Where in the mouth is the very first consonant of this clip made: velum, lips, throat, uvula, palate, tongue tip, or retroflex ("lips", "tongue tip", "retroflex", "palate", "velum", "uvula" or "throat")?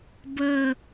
lips